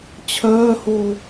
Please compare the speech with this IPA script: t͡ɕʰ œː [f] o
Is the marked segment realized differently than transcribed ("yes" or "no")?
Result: yes